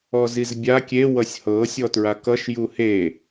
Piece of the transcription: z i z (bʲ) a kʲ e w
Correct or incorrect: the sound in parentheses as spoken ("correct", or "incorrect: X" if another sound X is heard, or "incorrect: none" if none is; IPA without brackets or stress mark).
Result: correct